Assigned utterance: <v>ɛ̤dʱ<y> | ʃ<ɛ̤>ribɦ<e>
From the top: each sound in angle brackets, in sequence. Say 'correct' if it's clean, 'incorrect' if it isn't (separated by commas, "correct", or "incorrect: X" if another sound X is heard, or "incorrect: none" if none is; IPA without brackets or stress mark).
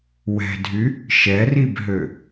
incorrect: w, correct, incorrect: ɛ, incorrect: ø